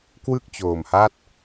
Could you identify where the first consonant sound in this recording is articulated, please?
velar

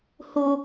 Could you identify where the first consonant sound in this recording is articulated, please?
glottal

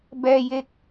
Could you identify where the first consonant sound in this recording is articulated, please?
labial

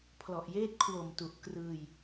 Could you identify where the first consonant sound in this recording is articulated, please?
labial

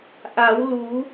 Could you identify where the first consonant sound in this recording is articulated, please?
glottal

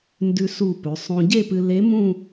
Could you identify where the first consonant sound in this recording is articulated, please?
alveolar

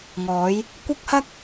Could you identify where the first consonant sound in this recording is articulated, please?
velar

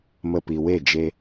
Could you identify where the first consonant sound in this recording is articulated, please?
labial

